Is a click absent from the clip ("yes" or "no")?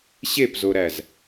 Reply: yes